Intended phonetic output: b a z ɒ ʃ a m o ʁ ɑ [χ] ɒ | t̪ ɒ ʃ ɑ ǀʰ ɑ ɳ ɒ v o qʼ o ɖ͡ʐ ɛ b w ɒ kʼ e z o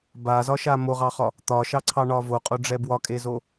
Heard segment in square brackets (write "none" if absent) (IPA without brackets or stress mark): χ